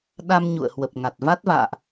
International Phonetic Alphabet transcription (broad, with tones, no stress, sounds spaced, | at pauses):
ɗ a˧ m ɲ ṵ˧˨ ə̯ h w ə˨˩ p̚ ŋ a˨˩ t̚ v a˦˥ t̚ v a̰ː˧˨ ʔ